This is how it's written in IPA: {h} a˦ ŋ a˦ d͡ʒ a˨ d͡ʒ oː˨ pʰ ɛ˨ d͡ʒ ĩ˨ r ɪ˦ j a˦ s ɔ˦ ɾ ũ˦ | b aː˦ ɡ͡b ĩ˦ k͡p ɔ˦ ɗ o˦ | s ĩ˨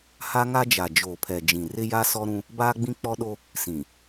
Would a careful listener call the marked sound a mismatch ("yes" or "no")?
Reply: no